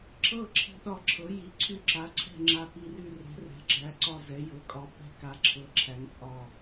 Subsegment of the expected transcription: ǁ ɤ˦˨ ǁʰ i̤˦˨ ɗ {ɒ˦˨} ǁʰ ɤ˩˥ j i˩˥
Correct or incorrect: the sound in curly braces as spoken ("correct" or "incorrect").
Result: correct